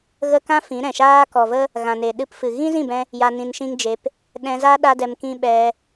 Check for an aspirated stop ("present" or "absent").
absent